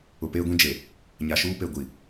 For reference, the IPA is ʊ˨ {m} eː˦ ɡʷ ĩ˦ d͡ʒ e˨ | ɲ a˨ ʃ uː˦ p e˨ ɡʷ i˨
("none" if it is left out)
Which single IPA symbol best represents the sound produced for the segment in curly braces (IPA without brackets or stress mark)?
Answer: p